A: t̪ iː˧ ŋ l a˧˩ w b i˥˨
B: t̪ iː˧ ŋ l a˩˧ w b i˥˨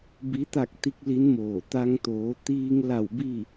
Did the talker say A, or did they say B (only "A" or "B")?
A